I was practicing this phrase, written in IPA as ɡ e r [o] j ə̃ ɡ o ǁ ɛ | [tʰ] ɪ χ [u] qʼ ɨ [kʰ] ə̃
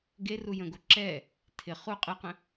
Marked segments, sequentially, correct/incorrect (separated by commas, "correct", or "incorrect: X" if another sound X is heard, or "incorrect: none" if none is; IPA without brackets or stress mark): incorrect: u, correct, correct, incorrect: q